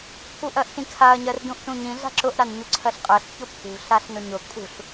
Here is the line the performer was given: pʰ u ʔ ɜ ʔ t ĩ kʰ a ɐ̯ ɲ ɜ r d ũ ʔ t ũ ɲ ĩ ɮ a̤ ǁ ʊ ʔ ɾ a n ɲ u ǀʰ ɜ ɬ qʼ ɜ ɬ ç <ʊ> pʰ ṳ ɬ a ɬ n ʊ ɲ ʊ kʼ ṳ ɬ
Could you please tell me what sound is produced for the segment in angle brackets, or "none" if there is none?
ʊ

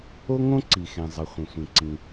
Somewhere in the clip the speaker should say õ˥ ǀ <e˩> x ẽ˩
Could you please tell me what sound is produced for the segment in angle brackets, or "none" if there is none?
i˩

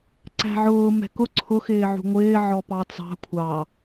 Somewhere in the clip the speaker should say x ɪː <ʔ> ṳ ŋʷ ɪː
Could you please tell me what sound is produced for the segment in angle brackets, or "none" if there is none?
ʕ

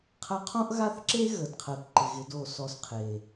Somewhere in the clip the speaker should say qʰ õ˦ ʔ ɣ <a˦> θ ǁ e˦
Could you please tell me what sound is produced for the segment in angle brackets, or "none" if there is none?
a˦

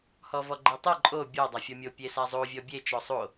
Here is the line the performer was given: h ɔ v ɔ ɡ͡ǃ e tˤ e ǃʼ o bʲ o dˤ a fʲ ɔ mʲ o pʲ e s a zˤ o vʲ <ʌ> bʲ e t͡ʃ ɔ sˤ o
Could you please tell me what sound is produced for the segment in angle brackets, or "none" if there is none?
ɔ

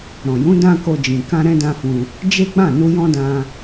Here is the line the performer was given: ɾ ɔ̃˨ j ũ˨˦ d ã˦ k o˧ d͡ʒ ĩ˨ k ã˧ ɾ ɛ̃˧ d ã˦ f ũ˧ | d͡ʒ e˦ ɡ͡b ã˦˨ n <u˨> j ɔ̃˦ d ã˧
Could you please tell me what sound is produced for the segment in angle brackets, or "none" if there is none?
u˧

